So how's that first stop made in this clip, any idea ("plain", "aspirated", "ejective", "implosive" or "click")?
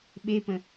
implosive